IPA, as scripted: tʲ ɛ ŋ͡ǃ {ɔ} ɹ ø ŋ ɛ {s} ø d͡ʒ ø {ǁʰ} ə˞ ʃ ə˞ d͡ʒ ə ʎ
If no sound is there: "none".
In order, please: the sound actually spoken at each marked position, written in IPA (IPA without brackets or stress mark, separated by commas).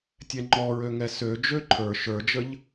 ɔ, s, ǃʰ